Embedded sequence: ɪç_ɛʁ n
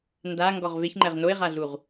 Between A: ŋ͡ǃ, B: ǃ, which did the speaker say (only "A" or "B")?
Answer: A